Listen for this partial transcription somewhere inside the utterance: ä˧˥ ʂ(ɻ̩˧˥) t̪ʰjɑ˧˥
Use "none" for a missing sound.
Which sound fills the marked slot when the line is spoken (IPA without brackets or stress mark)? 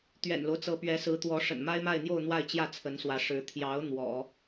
ɻ̩˧˥